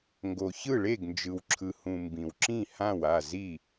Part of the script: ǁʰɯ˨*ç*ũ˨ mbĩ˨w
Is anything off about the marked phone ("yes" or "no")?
yes